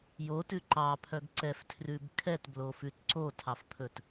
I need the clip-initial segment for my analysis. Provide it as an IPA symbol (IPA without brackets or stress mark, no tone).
j